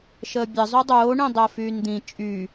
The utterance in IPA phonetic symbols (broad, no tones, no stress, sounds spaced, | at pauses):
ʃ əː bʲ ə zˤ y dˤ oː ɳ ĩ dˤ əː f yː n d̪ ĩ t͡ʃʼ y